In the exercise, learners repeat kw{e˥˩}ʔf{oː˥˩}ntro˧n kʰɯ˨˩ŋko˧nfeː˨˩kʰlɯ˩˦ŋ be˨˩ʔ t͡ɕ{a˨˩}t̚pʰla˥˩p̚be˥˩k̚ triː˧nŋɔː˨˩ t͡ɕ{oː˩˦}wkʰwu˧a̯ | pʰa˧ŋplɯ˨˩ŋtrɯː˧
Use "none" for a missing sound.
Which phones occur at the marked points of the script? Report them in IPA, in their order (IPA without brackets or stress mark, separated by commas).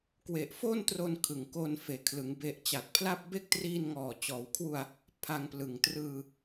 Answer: e˨˩, oː˥˩, a˨˩, ɔː˩˦